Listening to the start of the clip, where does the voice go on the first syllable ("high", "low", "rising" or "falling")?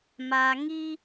low